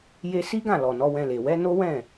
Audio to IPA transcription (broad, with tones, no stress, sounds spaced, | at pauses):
j e˧ s i˦ ɡ ã˦˨ l ɔ˨ n ɔ˨˦ w ɛ̃˧ l e˨ w ɛ˨˦ n o˦ w ɛ̃˦˨